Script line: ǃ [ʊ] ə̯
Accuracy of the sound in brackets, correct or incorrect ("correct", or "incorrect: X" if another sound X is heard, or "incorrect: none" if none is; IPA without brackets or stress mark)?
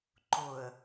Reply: correct